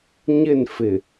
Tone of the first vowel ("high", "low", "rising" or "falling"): falling